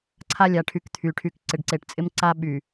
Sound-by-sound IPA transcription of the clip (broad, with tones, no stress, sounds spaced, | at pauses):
ǀʰ a˦ lʲ a˨ ʈʰ y˨˦ k t̪ʰ y˨ ʈʰ y˨ k ǀ ɪ˨ ɖ ǀ e˨ ʈ t͡sʼ ɪ˦ m ǀ a˦ ɓ y˨